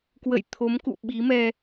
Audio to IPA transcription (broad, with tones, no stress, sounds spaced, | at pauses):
k w ə̰˧˨ j t̪ʰ o˨˦ m k ṵ˧˨ ɓ i˨˦ m ɛ˧